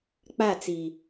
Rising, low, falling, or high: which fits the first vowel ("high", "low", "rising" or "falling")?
falling